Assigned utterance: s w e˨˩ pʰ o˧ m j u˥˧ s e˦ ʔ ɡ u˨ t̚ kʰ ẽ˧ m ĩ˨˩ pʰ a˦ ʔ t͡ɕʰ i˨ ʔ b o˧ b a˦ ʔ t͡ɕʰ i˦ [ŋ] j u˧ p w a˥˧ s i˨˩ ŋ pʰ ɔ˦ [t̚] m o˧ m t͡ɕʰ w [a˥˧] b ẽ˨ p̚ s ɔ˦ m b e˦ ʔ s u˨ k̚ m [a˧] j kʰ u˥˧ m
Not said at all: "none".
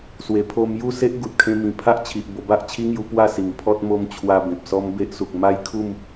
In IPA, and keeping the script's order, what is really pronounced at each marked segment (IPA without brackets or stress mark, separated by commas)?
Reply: ŋ, t̚, a˧, a˦